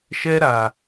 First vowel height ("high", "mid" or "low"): mid